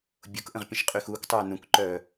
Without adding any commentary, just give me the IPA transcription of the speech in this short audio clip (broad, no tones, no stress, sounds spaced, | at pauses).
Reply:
bʲ o k ʔ ə̃ ʁ pʲ ə̃ ʃ qʼ y x uː k tˤ œː n ũ k ǃ œː